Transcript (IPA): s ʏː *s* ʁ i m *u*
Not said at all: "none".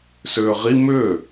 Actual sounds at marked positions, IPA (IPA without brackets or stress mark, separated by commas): none, ʏ